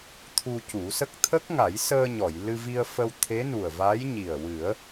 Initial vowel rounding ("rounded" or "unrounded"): rounded